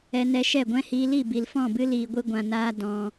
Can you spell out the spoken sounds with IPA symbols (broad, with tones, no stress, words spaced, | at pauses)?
ɛ˧nɛ˧ʃɛ˦˨ɡʷɛ̃˦ hiː˧li˦˨ bi˨lfɔ̃˦˨bɨ˦ liː˧ɡʷɨ˦ɡʷã˧naː˦ dɔ̃˧